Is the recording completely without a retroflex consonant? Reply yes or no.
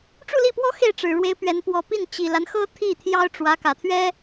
no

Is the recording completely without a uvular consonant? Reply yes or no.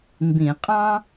no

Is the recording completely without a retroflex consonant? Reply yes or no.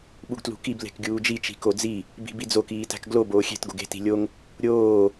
yes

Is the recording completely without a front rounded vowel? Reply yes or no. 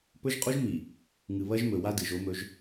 yes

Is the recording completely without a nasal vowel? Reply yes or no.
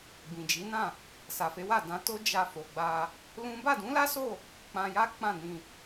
no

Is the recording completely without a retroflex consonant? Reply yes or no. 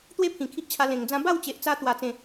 yes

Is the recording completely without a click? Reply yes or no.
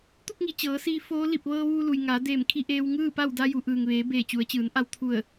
yes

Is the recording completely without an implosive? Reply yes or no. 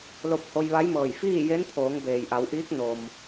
yes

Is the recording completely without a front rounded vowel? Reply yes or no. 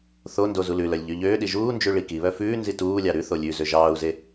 no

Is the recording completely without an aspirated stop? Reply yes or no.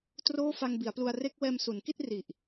yes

